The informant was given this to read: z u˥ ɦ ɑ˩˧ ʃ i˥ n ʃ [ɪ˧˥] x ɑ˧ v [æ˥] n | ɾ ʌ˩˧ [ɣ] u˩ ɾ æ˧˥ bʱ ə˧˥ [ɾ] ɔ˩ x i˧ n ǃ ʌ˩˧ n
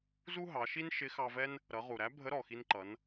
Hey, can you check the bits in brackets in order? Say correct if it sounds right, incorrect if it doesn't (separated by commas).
correct, incorrect, incorrect, correct